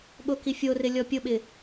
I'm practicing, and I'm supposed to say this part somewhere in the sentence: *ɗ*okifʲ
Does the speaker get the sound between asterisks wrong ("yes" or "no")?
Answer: yes